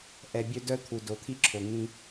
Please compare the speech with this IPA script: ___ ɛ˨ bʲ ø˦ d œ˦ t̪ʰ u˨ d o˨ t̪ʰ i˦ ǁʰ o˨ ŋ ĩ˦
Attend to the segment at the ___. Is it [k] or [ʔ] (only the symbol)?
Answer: ʔ